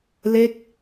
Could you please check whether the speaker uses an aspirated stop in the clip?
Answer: no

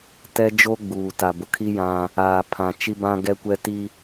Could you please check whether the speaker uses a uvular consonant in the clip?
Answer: no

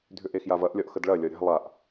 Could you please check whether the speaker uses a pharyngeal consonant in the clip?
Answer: no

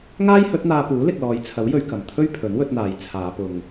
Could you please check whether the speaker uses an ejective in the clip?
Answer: no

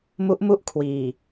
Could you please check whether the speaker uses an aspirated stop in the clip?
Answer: yes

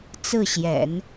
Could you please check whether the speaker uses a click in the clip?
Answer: no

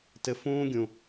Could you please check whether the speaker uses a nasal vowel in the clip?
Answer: yes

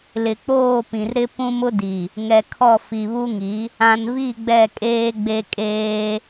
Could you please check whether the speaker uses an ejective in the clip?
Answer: yes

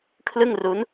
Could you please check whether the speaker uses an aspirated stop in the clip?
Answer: yes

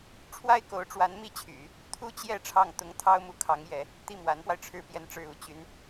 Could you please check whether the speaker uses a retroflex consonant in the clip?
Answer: yes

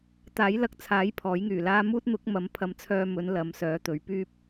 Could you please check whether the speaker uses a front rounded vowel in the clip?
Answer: yes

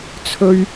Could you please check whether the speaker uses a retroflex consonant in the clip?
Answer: no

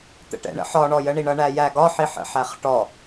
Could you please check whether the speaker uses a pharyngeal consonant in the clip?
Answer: yes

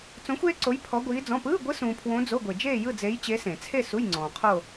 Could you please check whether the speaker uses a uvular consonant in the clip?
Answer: yes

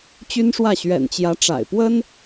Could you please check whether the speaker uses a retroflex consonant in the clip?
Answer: yes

